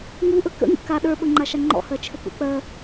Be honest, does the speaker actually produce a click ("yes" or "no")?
yes